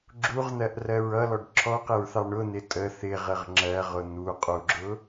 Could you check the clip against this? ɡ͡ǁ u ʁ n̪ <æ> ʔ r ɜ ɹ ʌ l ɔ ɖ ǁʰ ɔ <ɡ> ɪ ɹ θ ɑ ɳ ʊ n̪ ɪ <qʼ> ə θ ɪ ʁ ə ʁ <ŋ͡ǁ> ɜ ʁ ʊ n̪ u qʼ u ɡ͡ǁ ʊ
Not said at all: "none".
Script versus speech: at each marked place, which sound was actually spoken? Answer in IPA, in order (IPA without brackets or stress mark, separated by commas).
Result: ɜ, q, tʼ, ŋ͡ǁ